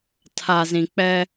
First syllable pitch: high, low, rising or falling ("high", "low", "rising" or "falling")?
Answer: low